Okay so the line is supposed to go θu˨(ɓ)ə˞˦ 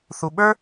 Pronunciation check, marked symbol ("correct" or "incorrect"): correct